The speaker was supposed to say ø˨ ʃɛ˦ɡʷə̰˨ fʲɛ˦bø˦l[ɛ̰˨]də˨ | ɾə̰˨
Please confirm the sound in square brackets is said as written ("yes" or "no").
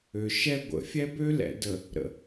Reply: yes